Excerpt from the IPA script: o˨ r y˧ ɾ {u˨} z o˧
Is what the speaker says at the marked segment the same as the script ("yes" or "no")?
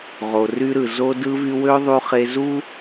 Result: no